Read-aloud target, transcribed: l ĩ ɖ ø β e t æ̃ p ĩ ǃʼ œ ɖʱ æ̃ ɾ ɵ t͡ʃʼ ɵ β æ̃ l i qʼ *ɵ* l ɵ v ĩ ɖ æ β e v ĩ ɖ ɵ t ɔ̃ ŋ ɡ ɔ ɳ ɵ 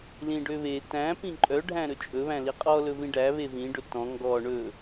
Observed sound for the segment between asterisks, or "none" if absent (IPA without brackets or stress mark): ɔ